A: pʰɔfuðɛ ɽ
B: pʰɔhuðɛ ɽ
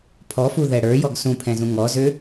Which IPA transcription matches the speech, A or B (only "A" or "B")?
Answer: A